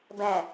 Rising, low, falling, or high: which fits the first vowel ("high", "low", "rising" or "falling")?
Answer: low